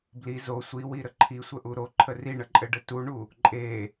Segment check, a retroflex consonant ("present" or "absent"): present